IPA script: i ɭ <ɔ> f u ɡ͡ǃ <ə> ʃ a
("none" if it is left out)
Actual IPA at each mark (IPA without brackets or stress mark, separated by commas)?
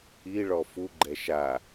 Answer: ɔ, ɛ